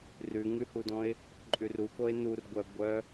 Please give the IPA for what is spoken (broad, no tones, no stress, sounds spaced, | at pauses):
r ʉ ŋ ʉ h u d ɔ̃ ɪ̯ | ǃʼ ʉ r u k o ɪ̯ n u r ɡʷ œ ɡʷ œ